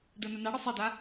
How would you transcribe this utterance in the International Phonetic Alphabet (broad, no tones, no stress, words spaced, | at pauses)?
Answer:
dənə naɽɨ sˤeda